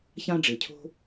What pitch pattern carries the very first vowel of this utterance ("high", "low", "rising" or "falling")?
high